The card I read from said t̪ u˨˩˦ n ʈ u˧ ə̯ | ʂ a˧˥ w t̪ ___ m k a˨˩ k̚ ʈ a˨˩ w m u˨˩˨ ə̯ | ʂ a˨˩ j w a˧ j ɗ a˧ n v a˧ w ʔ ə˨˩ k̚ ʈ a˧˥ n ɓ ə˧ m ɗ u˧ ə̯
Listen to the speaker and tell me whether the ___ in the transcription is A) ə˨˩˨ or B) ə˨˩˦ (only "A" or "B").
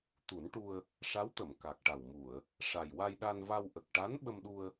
A